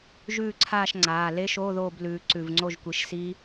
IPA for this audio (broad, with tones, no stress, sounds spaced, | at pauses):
ʒ ʉː˥˨ ǀʰ aː˥˨ ʃ ŋ͡ǀ aː˩˧˩ l e˦˥ ʃ oː˧˥˧ ð oː˥˨ b l ʉː˨˦ ǀ ʉ˧˩ v ŋ͡ǀ o˥˨ ʒ kʷ i˨˦ ʃ s i˦˥